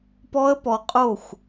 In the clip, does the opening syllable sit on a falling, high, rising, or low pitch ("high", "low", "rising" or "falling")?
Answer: high